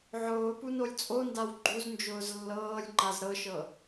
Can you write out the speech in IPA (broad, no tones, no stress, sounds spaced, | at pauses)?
ʕ ʊː p u n o lʲ t͡sʼ o n d a w ɡ͡ǃ u z n d͡ʒ ʊː z lː ɤː lʲ ŋ͡ǃ a z ɾ ɤ ʃ ɤ